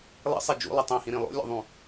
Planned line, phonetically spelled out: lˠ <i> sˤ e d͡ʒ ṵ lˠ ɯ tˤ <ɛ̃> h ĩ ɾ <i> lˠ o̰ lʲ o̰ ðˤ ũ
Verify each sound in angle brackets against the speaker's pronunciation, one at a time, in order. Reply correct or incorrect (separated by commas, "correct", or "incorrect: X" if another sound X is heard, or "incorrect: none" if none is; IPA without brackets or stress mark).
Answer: incorrect: ḭ, correct, incorrect: ĩ